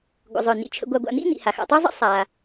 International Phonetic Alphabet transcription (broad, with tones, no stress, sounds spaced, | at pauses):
ɡʷ ə̰˩ zˤ œ˩ n ḭ˩ t͡ʃʰ ə̰˨ ɡʷ a˨ ɡʷ a̰˨ n̪ ḭ˦ n̪ ḭ˩ h a˩ x a̰˨ tˤ œ˦ zˤ ə̰˦ sˤ a˩